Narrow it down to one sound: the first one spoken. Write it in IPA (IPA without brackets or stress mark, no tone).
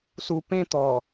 s